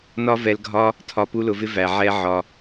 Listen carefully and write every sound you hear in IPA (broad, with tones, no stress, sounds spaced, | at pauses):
n ɒ˦ v ɛ˧ l ɡʱ ɒ˦ | tʰ ɒ˧ p u˦ l ʊ˧ v ɪ˦ v æ˨ ʕ ɛ˦ ʕ ɒ˧